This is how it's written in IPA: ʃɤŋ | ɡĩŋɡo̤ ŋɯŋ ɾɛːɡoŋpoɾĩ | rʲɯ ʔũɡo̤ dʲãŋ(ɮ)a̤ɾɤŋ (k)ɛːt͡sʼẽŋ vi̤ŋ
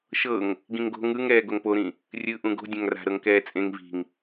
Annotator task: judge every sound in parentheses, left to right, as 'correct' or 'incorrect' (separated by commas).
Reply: incorrect, correct